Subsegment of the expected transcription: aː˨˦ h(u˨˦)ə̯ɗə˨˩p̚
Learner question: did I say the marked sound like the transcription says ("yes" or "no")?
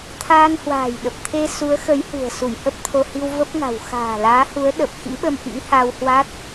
yes